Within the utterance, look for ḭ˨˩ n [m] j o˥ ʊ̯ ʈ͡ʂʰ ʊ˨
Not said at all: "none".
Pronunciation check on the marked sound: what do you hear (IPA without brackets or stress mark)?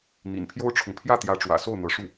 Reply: pʰ